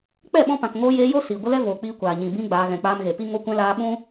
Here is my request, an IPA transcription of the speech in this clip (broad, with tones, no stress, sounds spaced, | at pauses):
k͡p ɛ˦˨ ɓ ɔ̃˧ p ã˨ k ŋ oː˧ j eː˧ j o˦ s iː˨ ɡʷ ə˦ l ɛ˦ v oː˨ k͡p iː˧ kʷ aː˨ ɲ ĩ˨ b ĩ˧ ɡ͡b aː˧ ɣ ɛ̃˧ k͡p aː˧ m ɣ e˨ p i˦ ŋ o˧ kʷ ɛ̃˧ l aː˧ ɓ ũ˦